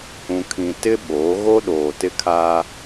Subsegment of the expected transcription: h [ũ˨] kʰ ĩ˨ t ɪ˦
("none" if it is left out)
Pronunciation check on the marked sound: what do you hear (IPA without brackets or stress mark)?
ũ˨